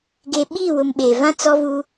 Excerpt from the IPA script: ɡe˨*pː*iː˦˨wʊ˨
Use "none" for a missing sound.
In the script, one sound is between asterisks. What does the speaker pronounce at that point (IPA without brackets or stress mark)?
ɓ